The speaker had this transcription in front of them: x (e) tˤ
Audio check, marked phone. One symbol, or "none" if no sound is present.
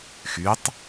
y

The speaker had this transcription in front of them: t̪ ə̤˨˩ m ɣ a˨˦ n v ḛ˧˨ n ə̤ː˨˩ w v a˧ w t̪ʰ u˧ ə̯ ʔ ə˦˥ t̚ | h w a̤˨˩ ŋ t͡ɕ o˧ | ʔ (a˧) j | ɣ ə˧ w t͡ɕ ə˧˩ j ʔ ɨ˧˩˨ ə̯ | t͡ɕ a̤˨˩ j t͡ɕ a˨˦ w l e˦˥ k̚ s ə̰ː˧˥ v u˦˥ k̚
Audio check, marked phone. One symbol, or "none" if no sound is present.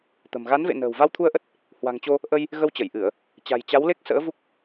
ə˧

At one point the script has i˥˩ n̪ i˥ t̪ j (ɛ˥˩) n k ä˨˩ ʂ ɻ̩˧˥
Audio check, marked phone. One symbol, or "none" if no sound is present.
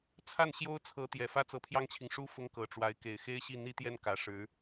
ɛ˥˩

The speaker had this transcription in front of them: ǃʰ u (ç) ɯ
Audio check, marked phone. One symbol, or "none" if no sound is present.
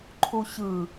ç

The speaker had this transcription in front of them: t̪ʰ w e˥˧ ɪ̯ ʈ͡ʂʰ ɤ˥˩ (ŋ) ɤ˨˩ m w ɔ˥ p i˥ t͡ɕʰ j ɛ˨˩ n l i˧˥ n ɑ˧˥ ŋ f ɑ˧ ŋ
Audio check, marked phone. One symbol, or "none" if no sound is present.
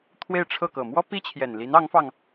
k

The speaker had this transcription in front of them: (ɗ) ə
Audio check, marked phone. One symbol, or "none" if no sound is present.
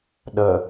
ɗ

